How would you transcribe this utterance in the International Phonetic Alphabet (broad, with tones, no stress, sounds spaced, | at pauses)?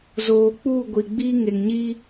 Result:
z oː˨ k͡p uː˦˨ ɡʷ i˨ ɡ͡b iː˦ ŋ e˨ ŋ ɲ iː˦